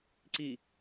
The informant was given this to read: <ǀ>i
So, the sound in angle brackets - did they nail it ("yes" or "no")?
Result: yes